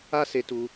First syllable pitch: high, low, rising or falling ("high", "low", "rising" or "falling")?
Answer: high